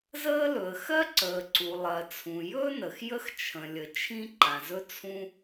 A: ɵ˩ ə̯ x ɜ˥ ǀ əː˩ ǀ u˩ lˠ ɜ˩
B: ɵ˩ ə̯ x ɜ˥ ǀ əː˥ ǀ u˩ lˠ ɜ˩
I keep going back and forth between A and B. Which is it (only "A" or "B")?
A